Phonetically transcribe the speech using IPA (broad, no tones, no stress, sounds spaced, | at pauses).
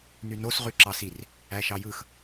n y n o s ʁ y ǁ ɑ s i r | æ ʃ ɑ j ɯ x